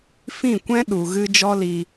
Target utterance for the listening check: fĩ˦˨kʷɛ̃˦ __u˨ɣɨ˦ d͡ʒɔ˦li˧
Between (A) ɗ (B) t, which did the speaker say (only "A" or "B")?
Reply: A